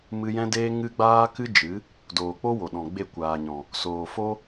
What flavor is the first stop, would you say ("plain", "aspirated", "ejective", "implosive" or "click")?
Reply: plain